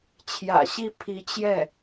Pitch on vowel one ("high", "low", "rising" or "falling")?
low